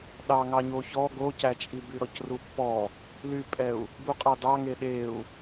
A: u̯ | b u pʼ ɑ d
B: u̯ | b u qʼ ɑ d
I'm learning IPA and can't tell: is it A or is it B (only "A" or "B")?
B